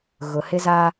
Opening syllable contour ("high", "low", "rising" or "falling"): low